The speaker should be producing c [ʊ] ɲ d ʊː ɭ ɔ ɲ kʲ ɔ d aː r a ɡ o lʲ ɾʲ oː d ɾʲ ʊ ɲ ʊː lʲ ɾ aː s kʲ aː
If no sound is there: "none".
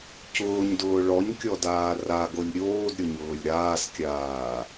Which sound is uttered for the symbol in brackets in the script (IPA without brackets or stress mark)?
ʊː